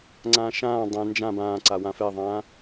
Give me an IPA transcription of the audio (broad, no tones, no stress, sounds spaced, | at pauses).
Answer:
ŋ͡ǀ ãː ʃ ãː dˤ ɛ̃ n d͡ʒ ã b ãː ǀ a w ã f ɛ ðˤ ãː